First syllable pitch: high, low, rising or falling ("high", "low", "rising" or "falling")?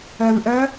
low